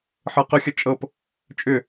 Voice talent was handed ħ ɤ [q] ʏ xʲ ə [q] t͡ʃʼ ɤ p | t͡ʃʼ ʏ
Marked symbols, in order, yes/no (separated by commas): yes, no